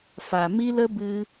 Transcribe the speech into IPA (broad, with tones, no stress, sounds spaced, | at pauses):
f a˨ m i˦ l ə˦ b ɨ˦